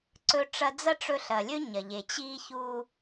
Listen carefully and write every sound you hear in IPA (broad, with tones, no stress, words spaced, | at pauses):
ǀɵ˧ ʈ͡ʂɐ˧d͡zɐ˦ʈ͡ʂɵ˧ ɬɐ˨lʲɵ˦ ɲɐ˨ʎe˨ t͡ɕi˧çu˧